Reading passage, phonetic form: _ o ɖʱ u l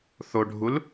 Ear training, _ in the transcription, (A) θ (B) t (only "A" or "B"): A